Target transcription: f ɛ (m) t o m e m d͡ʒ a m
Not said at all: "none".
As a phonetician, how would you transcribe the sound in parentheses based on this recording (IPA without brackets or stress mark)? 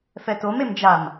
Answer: none